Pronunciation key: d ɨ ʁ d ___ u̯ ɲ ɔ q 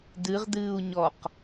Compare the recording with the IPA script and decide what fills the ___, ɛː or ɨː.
ɨː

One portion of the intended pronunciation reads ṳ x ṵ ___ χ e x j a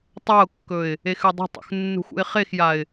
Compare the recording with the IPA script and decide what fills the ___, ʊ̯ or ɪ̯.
ɪ̯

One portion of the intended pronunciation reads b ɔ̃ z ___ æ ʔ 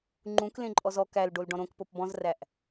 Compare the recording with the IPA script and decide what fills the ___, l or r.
r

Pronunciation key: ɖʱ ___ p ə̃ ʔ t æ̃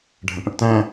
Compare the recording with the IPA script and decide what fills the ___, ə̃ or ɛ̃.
ə̃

